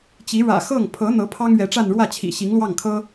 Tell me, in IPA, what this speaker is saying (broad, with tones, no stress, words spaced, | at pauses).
t͡ɕi˧˥ ɻä̰˨˩xɤ˥˩ŋ pʰɤ˧˥n̪ɤ˧˥ pʰɑ˥ŋɥɛ˧˥ʈ͡ʂa˥˧n ɻwä˥˩t͡ɕʰḭ˨˩ ɕi˧˥ŋlwɑ˥˩ŋkʰɤ˥